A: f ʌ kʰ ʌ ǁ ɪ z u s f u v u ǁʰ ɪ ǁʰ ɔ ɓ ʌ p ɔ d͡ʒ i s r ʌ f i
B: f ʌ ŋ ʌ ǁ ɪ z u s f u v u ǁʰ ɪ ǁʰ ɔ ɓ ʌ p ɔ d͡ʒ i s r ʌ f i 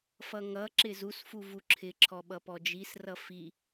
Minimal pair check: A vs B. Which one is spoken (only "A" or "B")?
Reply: B